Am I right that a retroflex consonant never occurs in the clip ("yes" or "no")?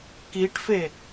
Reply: no